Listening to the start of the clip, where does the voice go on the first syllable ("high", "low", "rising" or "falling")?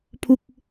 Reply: falling